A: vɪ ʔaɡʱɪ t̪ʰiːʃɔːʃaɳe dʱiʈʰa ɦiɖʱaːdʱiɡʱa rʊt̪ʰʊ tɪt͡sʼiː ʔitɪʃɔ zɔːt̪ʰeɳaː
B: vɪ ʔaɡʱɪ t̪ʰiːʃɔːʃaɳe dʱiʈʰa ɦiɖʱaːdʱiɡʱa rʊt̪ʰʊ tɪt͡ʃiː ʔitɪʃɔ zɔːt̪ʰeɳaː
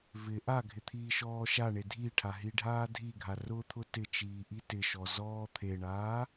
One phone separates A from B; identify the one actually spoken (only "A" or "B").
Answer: B